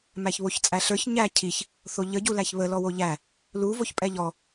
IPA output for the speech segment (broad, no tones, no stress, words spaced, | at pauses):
mæçβoçt͡sʼæɬə˞ç ɲæ cʰiç | θoʎə ɟulæçβə lɔwoʎæ | lu voçpʼɛʎɔ